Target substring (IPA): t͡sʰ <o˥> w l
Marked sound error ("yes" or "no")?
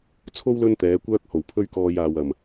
no